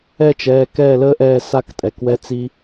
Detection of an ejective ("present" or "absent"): present